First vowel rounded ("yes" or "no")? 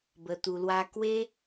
no